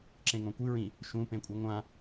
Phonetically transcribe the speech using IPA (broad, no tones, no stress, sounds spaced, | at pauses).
ǁ ẽ ŋ õ kʷ ɨ ɹ ĩ | ʃ ũ p ẽ kʷʼ ɨ ŋʷ ã